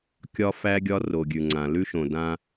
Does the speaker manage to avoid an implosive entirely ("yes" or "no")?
yes